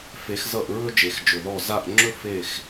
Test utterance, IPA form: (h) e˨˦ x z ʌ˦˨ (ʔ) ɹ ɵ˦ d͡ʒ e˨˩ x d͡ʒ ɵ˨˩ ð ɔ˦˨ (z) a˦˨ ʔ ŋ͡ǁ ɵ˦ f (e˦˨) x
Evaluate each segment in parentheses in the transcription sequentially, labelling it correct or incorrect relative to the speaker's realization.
incorrect: f, correct, correct, correct

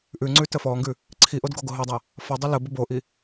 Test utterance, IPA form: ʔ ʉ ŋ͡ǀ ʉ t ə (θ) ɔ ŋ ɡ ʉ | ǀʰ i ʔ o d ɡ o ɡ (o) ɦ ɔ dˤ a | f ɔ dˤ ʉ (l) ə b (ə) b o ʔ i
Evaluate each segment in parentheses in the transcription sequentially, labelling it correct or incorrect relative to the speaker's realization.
incorrect: f, correct, correct, correct

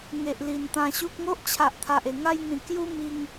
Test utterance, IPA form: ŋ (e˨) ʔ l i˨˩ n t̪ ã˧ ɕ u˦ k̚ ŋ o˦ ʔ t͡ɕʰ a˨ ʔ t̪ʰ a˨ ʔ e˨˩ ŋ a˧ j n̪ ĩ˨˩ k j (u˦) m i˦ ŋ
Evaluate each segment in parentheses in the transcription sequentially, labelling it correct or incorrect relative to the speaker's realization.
correct, correct

